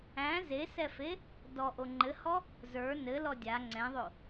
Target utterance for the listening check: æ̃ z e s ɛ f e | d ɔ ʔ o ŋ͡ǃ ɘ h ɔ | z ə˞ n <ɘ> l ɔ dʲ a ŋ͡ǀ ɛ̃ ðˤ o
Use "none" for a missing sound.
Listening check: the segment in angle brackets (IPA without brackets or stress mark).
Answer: ɘ